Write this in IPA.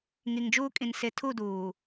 ŋi˨ŋd͡ʒuː˦kʼĩ˨n sɪ˨ tʰu˦˨duː˨

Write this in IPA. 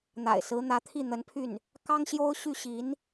n̪a̰˨˩ɪ̯sɹ̩˧˥n̪ä˧˥t̪ʰi˥˩ n̪ə˧˥npʰy˥˩n | kɑ˥ŋɕjo˥ʊ̯ ɕy˥˩ɕi˧˥n

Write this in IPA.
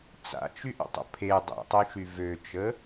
t͡sa̰t͡ʃyʔə̰tˤə̰ pʰe dˤḛtˤyʃy vøt͡ʃə

